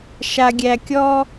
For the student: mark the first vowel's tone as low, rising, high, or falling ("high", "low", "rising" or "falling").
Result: low